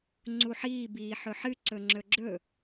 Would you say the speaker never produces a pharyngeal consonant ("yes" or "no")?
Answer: no